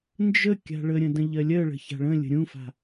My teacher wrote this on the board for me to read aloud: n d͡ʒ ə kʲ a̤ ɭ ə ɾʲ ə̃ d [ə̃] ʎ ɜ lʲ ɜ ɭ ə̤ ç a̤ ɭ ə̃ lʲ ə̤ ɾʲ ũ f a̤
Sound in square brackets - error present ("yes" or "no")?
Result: no